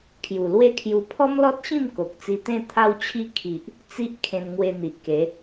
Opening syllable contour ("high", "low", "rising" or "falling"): low